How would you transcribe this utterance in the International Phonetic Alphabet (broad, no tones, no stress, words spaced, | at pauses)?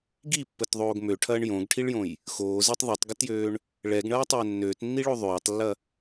ɡipːətðˤoːɡ møʈʰɐːɳ jõɡʈʰiɭjõj | xoːzitˤ ðˤitˤɡətjøːɳ | ɭɛɡɳɐːtˤɛː nːøːtnːiɭo ðˤøːtˤlːɐ